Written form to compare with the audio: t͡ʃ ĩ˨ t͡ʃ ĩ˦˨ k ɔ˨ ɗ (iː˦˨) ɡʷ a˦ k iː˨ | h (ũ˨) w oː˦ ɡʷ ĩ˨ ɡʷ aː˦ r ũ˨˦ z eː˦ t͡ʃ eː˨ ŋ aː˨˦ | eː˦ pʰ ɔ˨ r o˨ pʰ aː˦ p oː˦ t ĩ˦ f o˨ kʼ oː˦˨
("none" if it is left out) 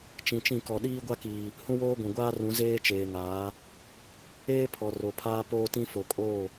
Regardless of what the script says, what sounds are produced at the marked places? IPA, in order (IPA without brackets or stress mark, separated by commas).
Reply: iː˦, ũ˦